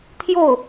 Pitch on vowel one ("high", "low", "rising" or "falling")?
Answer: falling